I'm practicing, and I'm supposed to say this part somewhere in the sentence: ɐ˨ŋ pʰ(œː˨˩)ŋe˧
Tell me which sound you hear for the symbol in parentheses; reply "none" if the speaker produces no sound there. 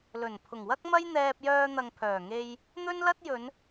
œː˨˩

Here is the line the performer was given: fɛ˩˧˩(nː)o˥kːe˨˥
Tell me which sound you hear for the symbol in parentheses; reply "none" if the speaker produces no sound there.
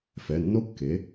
nː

